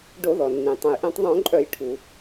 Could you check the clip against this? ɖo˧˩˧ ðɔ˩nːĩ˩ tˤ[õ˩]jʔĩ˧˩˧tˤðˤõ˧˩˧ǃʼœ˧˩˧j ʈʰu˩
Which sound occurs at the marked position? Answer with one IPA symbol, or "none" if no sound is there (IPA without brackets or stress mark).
õ˩